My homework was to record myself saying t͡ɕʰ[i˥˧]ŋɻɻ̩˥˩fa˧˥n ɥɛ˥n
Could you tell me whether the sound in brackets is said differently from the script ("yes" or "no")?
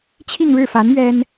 no